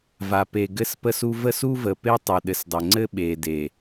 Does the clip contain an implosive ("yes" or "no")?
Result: yes